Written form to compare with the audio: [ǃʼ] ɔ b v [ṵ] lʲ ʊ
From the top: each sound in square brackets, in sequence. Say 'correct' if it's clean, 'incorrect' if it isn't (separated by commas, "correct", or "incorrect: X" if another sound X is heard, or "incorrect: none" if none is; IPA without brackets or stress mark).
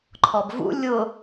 incorrect: ǃʰ, correct